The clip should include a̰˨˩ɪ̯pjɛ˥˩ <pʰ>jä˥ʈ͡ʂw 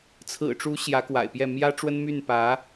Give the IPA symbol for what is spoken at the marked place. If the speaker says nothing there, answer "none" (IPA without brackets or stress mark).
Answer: m